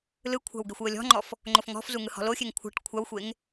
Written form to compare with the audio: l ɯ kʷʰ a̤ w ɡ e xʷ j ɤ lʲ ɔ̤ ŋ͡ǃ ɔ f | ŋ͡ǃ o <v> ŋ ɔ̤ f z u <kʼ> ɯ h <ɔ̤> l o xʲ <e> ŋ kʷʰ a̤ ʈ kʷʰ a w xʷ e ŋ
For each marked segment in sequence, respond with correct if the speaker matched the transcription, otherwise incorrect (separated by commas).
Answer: incorrect, incorrect, correct, correct